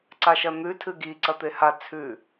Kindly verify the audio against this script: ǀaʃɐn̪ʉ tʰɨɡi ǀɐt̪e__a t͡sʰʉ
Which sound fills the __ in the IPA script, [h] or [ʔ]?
h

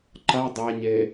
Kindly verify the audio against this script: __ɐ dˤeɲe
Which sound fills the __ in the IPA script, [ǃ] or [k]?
ǃ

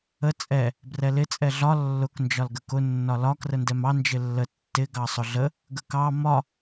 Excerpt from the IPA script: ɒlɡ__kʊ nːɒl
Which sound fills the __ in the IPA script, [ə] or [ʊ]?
ə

